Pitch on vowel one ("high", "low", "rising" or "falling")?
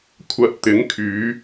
low